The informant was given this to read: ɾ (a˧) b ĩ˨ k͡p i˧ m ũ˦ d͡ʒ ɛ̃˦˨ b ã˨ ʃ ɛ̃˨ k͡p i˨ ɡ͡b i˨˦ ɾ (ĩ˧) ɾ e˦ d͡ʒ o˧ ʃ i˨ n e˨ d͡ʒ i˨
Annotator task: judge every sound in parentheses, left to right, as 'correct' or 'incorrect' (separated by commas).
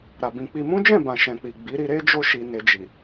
incorrect, incorrect